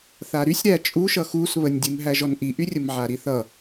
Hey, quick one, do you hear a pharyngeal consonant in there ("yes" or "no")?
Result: yes